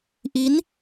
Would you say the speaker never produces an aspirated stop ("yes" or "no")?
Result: yes